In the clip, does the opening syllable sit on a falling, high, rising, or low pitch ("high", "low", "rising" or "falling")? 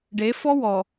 rising